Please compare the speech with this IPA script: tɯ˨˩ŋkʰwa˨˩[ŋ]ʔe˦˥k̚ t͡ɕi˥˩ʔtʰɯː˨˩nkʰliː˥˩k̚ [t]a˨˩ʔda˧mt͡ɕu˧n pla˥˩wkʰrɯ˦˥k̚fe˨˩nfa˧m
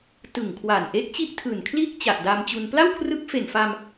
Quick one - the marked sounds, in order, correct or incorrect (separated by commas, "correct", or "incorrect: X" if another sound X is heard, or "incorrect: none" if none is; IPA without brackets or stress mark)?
incorrect: n, incorrect: t͡ɕ